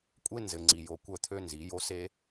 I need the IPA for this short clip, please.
kʷʼ e˦ n z ɘ˨ ŋ͡ǀ i˨ j o˨ kʷ œ˦˨ t̪ʰ ø˦ n z i˨˦ j o˦ s e˦

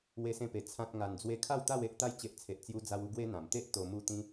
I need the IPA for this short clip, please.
w e˧ s ẽ˧ p e˨˩ t͡sʰ ã˨ t̚ ŋ a˨˩ n d͡z w e˧ kʰ a˥˧ w t̪ a˥˧ w e˦ ʔ t̪ a˧ j t͡ɕ e˨ ʔ t͡sʰ e˨ ʔ t͡s j u˧ d͡z a˧ w u˧ ɡ w e˦ n̪ ã˨˩ m t̪ e˦ ʔ t̪ o˧ m u˥˧ t̪ ĩ˦

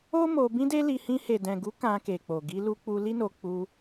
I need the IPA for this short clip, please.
o˦ m o˧ b ĩ˦ d e˦ l i˧ h ĩ˧ h e˨ d ɛ̃˨ ɡ u˨˦ k ã˧ k e˨ k͡p o˨ ɡ i˧ l u˧ k͡p u˧ l i˦ n o˧ k͡p u˧

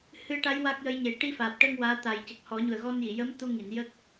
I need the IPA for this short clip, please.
h ɨ˧ ə̯ ʈ a˧˥ j w a˦˥ k̚ j ə˧˥ j ɲ e˨˩˦ ʈ i˧ f aː˨˩ p̚ ʈ əː˧ ŋ w aː˧˥ t̪ a˨˩ j c ə˨˩ k̚ h ɔ˨˩˦ ɲ u˨˩ ə̯ ɣ ɔ˧ n j i˨˩˨ j ə˧˥ m t̪ u˧ ŋ i˨˩˨ n j ə˦˥ k̚

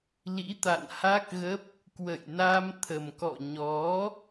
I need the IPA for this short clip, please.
l ḭ˧˥ t̪ a̰˧˨ n h a˦˥ k̚ ɣ ə˦˥ p̚ | k w ə̰˧˨ j n a˧ m t̪ʰ ə˨˩ m k ɔ̰˧˨ ɲ ɔ˨˦

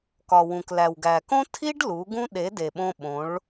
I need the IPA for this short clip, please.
k ɒ˨ w ũ˨ k l æ˨ w ɡ æ˨ k õ˦ tʰ i˦ ɖ l u˨˦ ɡ ũ˦ ɗ e˨˦ d e˨ ɓ õ˧ ɓ õ˨˦ ɭ

